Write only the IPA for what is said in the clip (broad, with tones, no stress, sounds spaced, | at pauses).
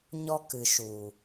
ɲ ɔ˧ k ɨ˨ ʃ u˨